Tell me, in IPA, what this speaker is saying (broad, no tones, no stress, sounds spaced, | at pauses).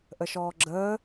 ʔ ə ʃ ɔː ɡ͡ǁ əː